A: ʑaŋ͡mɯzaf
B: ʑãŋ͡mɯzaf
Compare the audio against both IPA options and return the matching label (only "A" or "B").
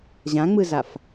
B